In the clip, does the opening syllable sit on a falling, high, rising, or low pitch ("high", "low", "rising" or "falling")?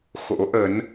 rising